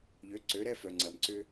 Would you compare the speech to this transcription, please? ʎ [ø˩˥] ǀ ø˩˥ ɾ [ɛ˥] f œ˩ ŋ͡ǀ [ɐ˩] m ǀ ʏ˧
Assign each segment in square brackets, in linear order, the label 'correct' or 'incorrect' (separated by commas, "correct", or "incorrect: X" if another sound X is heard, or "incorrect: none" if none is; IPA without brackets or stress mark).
correct, correct, correct